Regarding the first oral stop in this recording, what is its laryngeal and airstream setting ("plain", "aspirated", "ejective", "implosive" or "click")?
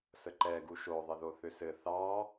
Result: click